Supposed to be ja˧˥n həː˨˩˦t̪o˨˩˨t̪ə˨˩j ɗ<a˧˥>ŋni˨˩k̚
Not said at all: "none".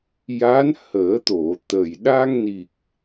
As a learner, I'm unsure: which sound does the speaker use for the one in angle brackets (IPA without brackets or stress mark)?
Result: a˧